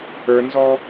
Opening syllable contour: high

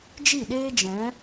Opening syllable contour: falling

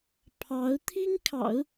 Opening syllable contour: rising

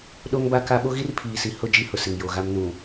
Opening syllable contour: high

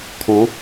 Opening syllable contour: rising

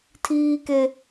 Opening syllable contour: high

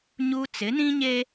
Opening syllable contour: high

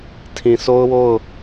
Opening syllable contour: low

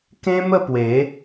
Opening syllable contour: high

